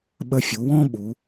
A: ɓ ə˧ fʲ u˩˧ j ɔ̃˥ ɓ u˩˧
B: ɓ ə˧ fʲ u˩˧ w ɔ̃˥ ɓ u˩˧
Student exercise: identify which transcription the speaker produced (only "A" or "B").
B